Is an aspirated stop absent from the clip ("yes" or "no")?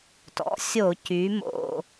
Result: yes